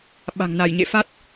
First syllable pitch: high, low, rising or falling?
low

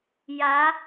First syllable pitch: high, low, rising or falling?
rising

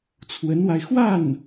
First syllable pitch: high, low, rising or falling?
rising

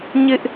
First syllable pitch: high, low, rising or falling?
high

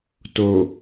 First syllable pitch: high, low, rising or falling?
low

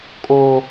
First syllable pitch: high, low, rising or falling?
high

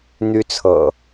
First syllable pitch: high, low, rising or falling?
high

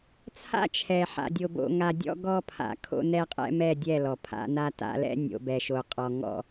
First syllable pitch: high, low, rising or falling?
high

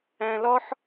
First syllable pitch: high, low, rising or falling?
high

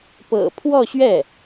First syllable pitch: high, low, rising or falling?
low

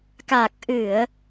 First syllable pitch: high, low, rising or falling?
low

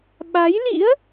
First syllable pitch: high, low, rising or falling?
rising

